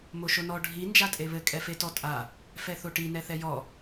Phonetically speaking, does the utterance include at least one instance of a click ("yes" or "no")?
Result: no